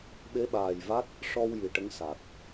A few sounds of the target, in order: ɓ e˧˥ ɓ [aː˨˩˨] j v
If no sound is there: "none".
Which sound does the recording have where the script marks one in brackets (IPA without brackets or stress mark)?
aː˨˩